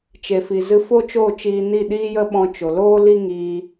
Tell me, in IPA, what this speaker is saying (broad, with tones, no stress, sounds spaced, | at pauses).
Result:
t͡ʃ e˨ f i˨ z ɨ˧ f o˦ t͡ʃ o˦˨ t͡ʃ iː˧ n i˦˨ ɗ iː˦ j ə˦ ɓ ɔ̃˧ t͡ʃ o˨ l oː˦ l i˦ ŋ iː˧